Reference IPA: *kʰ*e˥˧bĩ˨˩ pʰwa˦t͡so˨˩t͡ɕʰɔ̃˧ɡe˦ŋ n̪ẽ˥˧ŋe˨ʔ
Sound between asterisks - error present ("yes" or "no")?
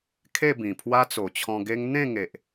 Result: no